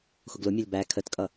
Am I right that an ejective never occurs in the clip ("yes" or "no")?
no